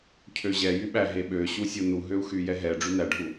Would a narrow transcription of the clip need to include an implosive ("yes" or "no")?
yes